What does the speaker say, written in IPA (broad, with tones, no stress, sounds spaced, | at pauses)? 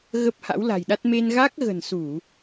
ɣ ə˦˥ p̚ h a̰˧˥ w l a̤˨˩ j ɗ a˦˥ t̚ m e˧ n ɣ a˦˥ k̚ ɣ ə̤˨˩ n s u˧˩˨